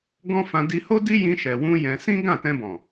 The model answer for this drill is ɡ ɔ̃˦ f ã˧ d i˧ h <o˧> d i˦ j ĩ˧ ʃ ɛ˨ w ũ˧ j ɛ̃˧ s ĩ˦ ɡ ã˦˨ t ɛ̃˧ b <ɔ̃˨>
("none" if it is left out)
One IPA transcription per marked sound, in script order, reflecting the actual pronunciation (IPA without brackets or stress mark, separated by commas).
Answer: o˦, ɔ̃˨